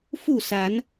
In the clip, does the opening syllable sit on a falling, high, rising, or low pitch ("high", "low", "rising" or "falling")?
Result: falling